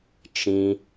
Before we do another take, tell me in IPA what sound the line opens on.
t͡ʃ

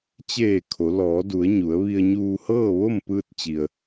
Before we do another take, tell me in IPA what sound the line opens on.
t͡ɕ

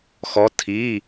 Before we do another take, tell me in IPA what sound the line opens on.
x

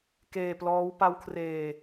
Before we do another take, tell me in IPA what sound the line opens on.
k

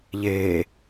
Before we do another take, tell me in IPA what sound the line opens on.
ʎ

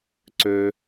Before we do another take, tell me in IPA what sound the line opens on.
ǀ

